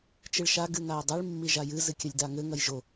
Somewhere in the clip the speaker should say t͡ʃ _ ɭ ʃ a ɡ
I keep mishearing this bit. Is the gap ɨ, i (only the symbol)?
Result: ɨ